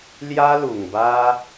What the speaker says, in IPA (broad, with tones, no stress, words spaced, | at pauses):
lja˦lu˨˩ŋba˦